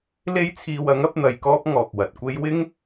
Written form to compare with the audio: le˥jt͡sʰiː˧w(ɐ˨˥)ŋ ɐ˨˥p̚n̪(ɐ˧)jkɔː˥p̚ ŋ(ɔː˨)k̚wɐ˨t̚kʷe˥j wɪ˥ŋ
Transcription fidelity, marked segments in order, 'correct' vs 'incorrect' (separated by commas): correct, correct, correct